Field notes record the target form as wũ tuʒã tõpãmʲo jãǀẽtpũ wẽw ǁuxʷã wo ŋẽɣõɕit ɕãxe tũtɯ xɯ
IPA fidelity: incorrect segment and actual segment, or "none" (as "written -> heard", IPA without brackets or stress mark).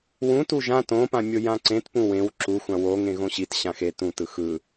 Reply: none